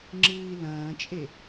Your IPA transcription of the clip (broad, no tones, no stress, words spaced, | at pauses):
ŋ͡ǁɨːi̯lɐ̃ːt͡ʃʼe